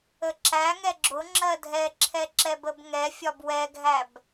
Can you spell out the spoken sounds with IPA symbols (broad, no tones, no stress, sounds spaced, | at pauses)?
ə ǁ æ ŋ ɛ ɡ͡ǁ ʊ ŋ͡ǁ ɜ dʱ ɛ ǁʰ ɛ ǁ ɛ b ə b ŋ ɛ fʲ ɒ b w ɛ ɡʱ æ b